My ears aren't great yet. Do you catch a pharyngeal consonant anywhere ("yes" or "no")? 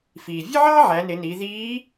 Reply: yes